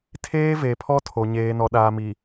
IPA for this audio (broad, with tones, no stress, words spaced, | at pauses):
tʰeː˦ve˨pʰɔ˦tʰo˨ ɲeː˨nɔ˨ɗaː˨mi˨